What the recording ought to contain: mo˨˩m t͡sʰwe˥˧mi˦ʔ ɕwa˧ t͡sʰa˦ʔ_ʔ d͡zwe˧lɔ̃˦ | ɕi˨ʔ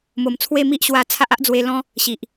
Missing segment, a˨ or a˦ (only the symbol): a˦